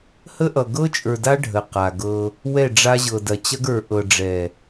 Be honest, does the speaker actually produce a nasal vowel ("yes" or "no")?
no